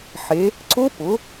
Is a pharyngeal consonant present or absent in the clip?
present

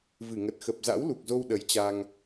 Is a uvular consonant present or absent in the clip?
absent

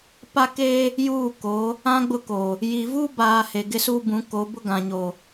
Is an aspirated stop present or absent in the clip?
absent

